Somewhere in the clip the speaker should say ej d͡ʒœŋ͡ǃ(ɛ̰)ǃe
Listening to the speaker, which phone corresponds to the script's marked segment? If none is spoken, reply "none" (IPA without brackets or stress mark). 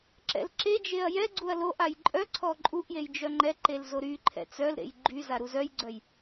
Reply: ɛ